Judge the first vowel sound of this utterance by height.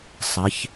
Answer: mid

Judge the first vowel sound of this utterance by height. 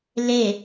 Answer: mid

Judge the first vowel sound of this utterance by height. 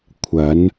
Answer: low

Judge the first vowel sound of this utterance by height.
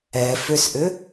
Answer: mid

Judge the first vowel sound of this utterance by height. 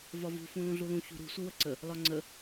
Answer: low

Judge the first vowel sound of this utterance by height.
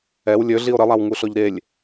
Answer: mid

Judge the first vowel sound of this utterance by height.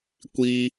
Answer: high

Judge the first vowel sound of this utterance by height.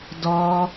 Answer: mid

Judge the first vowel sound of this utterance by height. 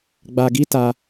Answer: low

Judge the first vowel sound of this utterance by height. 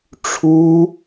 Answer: high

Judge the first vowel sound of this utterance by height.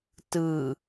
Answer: high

